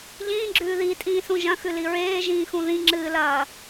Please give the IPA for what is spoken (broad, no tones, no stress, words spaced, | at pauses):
ʎĩːɡ͡ǁʉː ðitʼĩːsũ ʒɐ̃xʉli ɹeːʒĩːxũ ðĩŋ͡ǁɨːlɐː